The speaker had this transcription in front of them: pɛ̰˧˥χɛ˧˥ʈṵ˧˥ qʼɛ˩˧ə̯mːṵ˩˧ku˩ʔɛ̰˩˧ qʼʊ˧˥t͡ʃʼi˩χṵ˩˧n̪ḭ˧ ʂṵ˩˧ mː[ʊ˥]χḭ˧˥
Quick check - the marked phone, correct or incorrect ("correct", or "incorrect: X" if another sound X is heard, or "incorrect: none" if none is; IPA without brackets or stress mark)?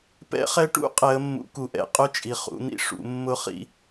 correct